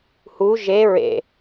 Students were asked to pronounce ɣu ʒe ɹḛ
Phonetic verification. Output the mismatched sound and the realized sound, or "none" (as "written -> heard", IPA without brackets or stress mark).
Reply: ɣ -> h